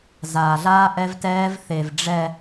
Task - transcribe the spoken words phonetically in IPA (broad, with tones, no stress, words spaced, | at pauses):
zaː˨ɮaː˦ ʔɛ˦vtɛː˦vθe˨v ɖ͡ʐɛ˨